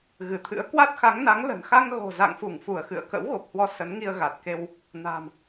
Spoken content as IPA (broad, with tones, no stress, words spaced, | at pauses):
ɣɨ˧˩t̪ʰɨ̰˧˥ə̯ kwa˦˥t̚xa˨˦ŋ na˨˦ŋlə̤˨˩n xa˧ŋɣo̤˨˩za̰˧˨ŋfu˧˩ŋ fu˧˩ə̯xɨ̰˧˨ə̯ kə̰˧˥wɣo˨˩p̚hwɔ˧ sə˨˦nŋi˧ə̯ ɣa˨˩t̚ke˧w | na̤˨˩m